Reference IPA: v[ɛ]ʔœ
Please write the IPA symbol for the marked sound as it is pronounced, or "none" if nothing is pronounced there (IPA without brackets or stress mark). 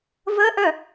ə